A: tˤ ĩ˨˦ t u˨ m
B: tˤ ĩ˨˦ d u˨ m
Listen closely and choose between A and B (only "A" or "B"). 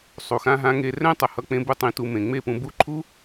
A